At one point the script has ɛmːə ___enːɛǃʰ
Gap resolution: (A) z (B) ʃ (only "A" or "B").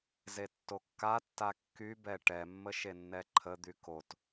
B